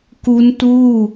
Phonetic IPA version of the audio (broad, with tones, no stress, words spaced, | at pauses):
ku˦˥ntuː˥˩